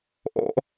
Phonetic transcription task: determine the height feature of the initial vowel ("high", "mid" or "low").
mid